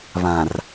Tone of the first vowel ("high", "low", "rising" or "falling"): low